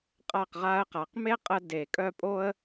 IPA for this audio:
qʼ a˦˨ q ʁ a˦ ə̯ q a˨˦ q m e˦ qʼ ə˧ d e˨ kʼ œ˦˨ pʼ o˦ ə̯

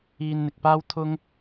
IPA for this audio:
iː˧ n n̪ ɪ˨ k̚ p aː˥ w t̪ʰ ʊ˥ ŋ

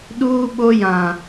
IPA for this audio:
ɗ uː˨ ɓ o˨ j ã˨

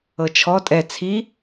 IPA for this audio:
ɤ t͡ʃʰ ɔ tʼ ɛ t͡sʰ i

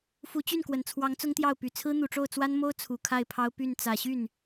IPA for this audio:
f u˧˥ t͡ɕ y˥˩ n k w ə˨˩ n t͡sʰ w ɑ˧˥ ŋ t͡s ʊ˥ ŋ t̪ j ɑ˥˩ ʊ̯ p y˨˩ t͡sʰ ɹ̩˥ n̪ u˨˩ ʈ͡ʂ o˥˩ ʊ̯ t͡s w a˥ n m o˥ ʊ̯ t͡sʰ u˨˩ kʰ a˥˩ ɪ̯ pʰ ɑ˥ ʊ̯ p y˥˩ n t͡s ä˨˩ ɕ y˥˩ n

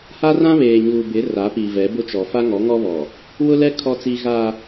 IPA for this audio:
h a˦ r ã˦ β eː˨ ɲ uː˨ b ɪ˨˦ r a˨˦ p i˨ v ɛ˨˦ b ʊ˦ t͡ʃ ɔ˨ f a˦ ŋ ɔ˨˦ ŋ ɔ˦ β ɔ˨ | w ʊ˦ l ɛ˦ kʰ ɔ˦ t͡s i˦ ɣ a˦

